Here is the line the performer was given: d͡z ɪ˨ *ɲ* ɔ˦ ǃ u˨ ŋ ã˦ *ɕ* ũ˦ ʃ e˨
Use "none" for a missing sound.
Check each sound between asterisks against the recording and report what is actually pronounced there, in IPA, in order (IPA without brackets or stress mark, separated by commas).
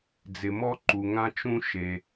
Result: m, t͡ʃ